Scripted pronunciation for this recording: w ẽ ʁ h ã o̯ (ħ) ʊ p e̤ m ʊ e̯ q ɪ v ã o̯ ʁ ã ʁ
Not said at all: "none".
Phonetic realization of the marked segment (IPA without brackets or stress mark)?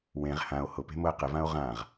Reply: h